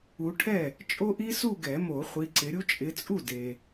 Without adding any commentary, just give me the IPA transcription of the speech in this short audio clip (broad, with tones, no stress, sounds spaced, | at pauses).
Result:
u˨˦ ʈʰ ɛ˥˩ | t͡ʃʼ o˦˥ ʔ i˦˥ s u˥˧ ɡ ɛ˨˩˦ m o˨˩˦ χʷ i˨˦ ǀ ɪ˨˦ ɾʲ u˦˥ t͡ʃʼ ɪ˨˦ t͡sʼ u˥˩ d e˨